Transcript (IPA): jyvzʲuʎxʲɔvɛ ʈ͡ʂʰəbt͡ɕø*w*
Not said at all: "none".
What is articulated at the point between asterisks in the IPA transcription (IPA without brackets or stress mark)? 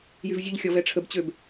b